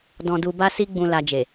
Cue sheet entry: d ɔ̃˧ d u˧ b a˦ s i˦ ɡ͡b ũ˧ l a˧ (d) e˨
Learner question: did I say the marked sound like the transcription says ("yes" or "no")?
no